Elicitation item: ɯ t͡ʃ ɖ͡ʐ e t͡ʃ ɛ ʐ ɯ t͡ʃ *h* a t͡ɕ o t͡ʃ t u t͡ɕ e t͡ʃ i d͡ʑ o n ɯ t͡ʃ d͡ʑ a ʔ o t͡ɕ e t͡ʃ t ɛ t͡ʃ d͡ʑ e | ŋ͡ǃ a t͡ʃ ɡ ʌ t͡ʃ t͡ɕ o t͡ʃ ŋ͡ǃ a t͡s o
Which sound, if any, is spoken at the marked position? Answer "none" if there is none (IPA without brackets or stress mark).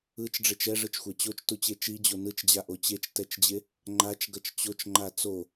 xʷ